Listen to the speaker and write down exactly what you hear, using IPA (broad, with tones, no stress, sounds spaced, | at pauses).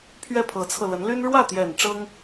pʰ ɥ ɛ˥˩ pʰ ɤ˧˥ t͡sʰ ɤ˧ l ə˧˥ n l y˥ n ɻ w ä˥˩ t̪ j ɛ˨˩ n ʈ͡ʂ ɤ˥ ŋ